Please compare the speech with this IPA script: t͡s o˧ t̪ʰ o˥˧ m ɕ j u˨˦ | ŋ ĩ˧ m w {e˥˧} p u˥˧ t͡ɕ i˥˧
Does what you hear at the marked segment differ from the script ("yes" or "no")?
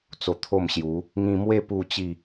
no